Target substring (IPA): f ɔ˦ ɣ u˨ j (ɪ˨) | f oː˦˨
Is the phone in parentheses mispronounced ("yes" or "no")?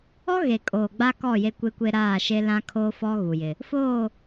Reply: no